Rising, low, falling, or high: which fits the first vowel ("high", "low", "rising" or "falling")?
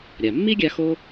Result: low